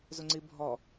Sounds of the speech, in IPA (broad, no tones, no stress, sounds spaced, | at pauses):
z ʊ ŋ͡ǀ i bʱ ɔ